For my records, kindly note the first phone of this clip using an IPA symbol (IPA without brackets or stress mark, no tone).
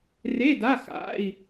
r